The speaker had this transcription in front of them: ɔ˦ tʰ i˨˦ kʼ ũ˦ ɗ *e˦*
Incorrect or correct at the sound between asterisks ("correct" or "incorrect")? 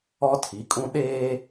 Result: incorrect